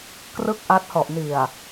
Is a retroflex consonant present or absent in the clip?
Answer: absent